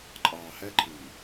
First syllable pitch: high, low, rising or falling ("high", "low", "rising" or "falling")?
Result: low